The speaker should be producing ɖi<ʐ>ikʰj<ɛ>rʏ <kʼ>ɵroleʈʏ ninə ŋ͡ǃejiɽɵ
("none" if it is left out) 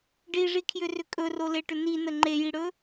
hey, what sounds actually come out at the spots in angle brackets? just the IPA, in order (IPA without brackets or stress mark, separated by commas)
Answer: ʐ, ʏ, kʼ